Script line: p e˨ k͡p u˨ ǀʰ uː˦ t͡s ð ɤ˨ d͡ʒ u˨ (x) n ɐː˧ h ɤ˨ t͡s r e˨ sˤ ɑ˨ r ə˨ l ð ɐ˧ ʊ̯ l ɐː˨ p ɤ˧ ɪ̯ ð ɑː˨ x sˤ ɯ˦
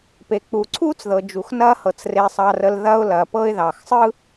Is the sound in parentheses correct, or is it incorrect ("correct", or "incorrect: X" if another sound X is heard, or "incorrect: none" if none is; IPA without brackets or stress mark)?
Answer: correct